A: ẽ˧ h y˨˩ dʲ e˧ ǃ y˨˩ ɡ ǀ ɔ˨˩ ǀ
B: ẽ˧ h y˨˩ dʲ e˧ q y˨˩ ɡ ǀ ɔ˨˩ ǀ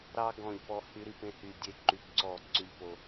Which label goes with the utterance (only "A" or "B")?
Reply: A